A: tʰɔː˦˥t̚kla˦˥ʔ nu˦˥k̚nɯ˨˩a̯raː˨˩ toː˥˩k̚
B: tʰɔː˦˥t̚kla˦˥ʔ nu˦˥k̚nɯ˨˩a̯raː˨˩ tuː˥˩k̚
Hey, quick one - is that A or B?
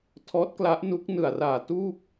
B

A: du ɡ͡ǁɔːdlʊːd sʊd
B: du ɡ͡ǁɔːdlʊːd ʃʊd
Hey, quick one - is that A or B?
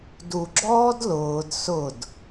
A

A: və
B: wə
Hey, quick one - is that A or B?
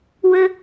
B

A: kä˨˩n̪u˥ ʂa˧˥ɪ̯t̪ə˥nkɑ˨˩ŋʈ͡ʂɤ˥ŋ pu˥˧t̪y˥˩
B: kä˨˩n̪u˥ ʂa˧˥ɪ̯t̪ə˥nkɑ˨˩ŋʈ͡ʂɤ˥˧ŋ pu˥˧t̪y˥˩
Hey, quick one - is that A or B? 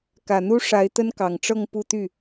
B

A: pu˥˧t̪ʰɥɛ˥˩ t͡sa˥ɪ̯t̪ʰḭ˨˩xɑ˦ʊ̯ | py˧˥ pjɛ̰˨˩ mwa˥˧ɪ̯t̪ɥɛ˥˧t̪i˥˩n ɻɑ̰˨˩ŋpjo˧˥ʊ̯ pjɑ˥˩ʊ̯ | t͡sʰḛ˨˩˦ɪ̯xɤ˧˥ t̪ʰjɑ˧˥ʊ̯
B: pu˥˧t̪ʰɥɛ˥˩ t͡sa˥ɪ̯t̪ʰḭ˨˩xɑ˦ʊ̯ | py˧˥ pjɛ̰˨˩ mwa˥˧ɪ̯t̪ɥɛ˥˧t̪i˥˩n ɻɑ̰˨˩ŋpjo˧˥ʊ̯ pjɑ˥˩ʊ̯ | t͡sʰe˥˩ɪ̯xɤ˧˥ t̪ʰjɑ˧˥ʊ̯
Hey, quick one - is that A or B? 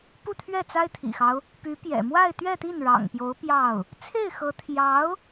B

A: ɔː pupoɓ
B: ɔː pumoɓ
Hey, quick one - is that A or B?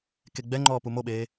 B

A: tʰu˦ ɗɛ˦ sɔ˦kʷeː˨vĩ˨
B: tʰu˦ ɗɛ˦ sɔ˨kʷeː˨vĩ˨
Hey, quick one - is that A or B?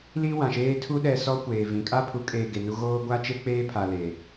A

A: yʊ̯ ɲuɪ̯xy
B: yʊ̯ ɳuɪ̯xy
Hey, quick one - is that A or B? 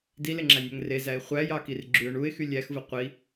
B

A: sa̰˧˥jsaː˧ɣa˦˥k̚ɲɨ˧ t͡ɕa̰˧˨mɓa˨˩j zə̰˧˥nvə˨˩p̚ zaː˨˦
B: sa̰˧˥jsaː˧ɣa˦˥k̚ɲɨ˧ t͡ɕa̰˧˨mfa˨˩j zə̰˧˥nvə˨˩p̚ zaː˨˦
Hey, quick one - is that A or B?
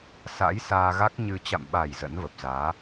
A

